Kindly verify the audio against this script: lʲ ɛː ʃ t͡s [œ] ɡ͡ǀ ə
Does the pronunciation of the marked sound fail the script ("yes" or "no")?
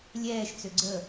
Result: yes